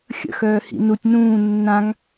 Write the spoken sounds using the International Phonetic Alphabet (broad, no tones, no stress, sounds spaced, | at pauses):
xʲ ə̰ x œː h ḭ n u tʲ n ũː nː ã ŋ